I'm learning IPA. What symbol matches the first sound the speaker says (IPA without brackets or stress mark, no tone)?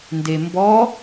n